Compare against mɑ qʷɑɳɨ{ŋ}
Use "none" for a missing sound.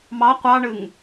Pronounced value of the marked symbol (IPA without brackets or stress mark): ŋ